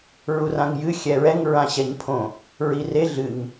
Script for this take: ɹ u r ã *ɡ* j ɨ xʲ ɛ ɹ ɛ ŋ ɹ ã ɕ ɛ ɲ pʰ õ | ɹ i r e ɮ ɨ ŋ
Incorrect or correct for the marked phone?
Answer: incorrect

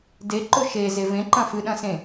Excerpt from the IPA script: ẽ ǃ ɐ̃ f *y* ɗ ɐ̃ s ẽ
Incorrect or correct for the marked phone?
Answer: incorrect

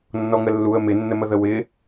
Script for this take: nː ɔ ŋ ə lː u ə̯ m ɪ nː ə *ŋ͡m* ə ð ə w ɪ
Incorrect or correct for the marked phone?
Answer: incorrect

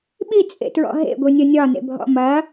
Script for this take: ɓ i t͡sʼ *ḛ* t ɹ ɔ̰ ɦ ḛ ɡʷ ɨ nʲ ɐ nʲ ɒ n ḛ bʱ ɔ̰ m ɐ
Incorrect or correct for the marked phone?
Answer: correct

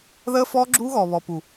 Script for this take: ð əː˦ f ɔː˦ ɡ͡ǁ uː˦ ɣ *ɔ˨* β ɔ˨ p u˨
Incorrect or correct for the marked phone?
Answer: incorrect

